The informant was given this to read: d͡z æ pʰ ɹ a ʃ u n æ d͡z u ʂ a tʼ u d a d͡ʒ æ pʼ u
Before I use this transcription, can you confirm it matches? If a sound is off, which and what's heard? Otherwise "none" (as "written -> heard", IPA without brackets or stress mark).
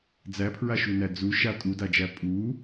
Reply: ʂ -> ʃ